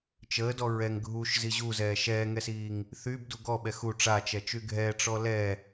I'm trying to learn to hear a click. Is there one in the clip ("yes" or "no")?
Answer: no